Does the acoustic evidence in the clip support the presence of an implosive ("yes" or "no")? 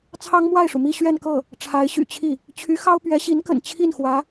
no